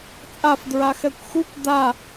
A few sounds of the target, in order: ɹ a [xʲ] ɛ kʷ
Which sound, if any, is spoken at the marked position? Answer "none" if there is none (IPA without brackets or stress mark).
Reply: x